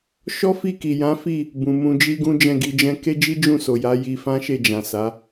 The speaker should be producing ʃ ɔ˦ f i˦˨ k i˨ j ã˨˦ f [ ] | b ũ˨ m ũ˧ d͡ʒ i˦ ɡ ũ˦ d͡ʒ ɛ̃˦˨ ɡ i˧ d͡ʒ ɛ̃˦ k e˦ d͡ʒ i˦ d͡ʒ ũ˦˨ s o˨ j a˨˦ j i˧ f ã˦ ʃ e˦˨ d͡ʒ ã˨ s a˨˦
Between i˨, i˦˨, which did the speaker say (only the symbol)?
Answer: i˦˨